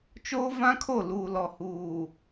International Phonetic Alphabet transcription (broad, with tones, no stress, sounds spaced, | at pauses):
t͡ʃ oː˦ v ã˦ kʰ o˦˨ l uː˨ l ɔ˨ h uː˨